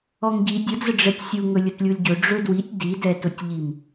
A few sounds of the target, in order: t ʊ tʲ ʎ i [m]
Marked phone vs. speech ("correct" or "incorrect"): correct